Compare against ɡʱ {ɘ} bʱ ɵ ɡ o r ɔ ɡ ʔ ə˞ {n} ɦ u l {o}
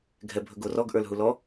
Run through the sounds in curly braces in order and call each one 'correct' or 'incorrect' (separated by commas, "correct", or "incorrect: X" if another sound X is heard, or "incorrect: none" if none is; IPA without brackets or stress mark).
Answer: incorrect: ɛ, incorrect: l, incorrect: ɔ